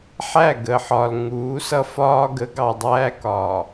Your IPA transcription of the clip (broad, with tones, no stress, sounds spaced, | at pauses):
ħ æ˦˨ ɡ ə˨ ħ ɒ˨ l ŋ uː˨˦ s ʌ˦ f ɒː˦ ɡ ə˨˦ ɡ ɑ˨ dˤ æː˦ k ɒː˨